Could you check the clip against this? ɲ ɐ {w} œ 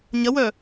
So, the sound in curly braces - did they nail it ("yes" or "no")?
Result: yes